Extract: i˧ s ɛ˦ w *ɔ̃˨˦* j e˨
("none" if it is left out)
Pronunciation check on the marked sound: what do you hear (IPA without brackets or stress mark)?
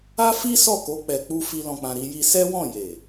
ɔ̃˦˨